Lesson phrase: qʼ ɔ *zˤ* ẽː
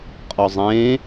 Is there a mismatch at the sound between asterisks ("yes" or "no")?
no